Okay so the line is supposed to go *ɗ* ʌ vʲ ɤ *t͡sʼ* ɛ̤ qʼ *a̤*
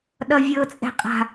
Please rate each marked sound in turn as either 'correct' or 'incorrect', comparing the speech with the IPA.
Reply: correct, correct, correct

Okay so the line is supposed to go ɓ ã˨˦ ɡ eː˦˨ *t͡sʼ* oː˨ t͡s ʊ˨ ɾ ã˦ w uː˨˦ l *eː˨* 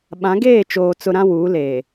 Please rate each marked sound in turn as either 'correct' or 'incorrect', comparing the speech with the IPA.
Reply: incorrect: t͡ʃ, correct

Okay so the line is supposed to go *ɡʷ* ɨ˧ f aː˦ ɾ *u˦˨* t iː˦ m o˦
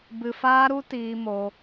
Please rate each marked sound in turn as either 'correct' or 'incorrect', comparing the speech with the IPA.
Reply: incorrect: b, incorrect: u˦

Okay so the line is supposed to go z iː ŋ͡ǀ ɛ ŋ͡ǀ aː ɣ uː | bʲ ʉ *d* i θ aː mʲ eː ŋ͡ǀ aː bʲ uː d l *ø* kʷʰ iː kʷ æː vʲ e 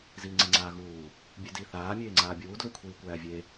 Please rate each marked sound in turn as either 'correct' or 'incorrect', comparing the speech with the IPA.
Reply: correct, incorrect: ʉ

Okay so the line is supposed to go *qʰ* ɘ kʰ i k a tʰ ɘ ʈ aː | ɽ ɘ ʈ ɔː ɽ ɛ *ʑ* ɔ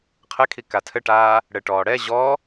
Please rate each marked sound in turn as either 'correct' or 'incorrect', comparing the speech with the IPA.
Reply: correct, correct

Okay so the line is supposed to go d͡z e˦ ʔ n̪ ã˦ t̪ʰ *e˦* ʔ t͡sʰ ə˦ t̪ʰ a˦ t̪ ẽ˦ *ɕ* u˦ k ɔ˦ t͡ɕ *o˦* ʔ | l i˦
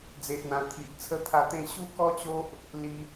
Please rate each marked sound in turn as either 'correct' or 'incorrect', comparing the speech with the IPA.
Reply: incorrect: i˦, correct, correct

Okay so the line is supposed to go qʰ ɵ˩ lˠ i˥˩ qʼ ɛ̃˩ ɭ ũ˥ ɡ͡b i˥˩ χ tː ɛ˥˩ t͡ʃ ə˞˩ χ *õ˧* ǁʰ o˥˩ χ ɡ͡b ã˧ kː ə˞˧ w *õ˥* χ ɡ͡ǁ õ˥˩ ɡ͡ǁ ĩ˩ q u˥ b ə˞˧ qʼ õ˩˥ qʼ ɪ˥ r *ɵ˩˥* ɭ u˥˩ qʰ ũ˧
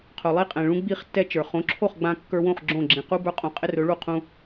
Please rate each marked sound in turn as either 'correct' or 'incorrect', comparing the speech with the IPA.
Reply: incorrect: õ˩˥, incorrect: õ˥˩, correct

